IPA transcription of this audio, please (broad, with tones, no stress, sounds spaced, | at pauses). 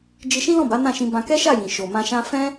d͡ʒ i˧ ʃ ĩ˦ l ɔ̃˦˨ b a˨˦ n ã˦˨ ʃ ĩ˧ b ã˧ k ɛ˦ ʃ a˦˨ j ĩ˨ ʃ o˨ m ã˧ ʃ ã˧ f ɛ̃˦